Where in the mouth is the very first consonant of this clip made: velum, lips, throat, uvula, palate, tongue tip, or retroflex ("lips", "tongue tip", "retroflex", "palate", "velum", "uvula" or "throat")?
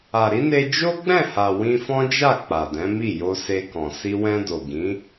tongue tip